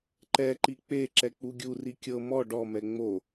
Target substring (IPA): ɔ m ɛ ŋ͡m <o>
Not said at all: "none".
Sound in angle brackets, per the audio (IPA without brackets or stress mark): o